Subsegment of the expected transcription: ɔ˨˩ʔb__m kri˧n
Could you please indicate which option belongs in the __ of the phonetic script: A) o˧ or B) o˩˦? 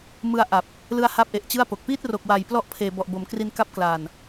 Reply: B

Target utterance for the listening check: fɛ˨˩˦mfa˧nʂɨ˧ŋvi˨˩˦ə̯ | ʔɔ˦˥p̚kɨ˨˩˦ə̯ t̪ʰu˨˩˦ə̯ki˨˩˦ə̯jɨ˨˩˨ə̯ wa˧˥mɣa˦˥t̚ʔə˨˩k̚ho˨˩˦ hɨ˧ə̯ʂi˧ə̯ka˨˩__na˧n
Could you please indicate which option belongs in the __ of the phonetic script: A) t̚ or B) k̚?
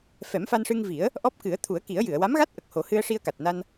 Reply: A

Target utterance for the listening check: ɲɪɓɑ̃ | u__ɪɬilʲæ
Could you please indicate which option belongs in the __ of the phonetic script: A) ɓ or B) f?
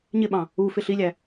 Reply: B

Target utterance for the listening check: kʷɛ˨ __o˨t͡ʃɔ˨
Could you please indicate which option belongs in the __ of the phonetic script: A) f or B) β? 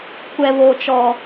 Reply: B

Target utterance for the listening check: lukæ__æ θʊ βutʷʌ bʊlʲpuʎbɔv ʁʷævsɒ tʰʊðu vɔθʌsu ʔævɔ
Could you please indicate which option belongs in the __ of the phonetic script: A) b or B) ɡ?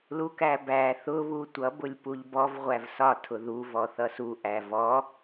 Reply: A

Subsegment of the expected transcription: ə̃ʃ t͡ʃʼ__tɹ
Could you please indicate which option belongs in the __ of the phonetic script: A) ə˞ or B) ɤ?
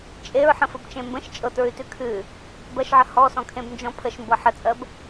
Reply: B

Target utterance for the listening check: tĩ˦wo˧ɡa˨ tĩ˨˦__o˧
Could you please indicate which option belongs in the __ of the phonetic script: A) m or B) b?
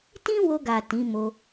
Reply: A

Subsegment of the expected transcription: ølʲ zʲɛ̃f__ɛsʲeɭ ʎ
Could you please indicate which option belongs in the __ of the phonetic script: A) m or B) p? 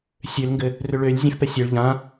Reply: B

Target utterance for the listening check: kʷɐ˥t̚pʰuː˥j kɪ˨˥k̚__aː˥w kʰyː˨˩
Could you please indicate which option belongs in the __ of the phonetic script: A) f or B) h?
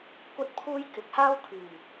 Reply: B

